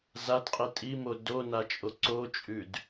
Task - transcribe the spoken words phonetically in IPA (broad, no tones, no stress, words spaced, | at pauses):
zadqʼi tʼimo donat͡ʃʼo ǀot͡ʃʼʉd